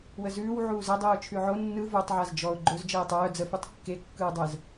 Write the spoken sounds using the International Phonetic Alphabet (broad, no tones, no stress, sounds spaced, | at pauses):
w ə z ʉː w ʕ uː z ə dˤ ɯː ʊ̯ t͡ʃʰ ʉ ʕ o nː ɯ v o tˤ ʕ a z d͡ʒ ɔ ʊ̯ ɡ͡ǃ ɵ z d͡ʒ əː ɪ̯ tˤ œː d͡z ə f ʉ tˤ kː e kː ɯː dˤ əː z